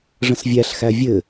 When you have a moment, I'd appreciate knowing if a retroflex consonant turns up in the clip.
yes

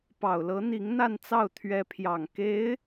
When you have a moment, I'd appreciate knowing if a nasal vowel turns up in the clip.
no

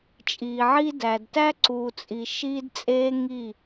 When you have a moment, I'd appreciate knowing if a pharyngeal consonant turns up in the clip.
yes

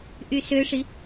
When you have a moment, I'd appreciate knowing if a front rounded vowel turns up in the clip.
yes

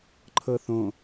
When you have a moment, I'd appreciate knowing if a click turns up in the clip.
yes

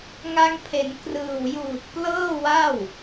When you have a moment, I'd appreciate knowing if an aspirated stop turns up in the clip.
yes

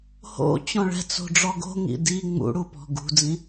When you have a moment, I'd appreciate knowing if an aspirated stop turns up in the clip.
no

